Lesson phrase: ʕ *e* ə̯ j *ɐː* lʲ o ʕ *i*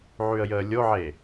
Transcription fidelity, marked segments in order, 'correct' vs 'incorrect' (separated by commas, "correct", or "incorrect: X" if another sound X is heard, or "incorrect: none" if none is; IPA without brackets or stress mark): incorrect: y, incorrect: əː, incorrect: e